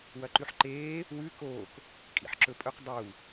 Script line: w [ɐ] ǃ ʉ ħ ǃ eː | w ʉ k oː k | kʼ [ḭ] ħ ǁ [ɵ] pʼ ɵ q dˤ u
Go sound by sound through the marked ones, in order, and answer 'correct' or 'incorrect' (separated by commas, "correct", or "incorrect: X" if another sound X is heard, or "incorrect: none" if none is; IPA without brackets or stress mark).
correct, correct, correct